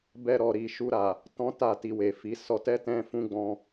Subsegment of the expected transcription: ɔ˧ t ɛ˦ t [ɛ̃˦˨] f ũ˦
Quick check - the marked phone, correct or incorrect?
incorrect